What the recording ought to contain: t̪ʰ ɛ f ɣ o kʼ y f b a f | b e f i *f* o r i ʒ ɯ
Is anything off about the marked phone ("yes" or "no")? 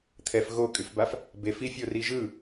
yes